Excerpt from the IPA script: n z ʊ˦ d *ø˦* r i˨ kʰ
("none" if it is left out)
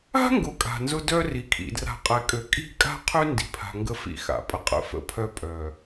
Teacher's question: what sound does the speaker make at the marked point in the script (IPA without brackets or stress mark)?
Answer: œ˦